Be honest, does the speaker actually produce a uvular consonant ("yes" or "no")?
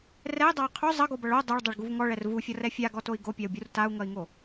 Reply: yes